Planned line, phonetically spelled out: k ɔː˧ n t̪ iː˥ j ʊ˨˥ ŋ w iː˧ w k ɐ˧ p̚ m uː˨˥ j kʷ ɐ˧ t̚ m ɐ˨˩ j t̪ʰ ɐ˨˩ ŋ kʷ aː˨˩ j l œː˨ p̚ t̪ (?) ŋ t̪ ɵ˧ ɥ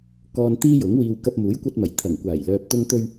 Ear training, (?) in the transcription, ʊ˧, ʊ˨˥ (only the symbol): ʊ˧